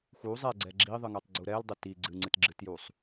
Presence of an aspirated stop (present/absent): absent